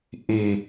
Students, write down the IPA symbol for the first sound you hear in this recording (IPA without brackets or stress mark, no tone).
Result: ʔ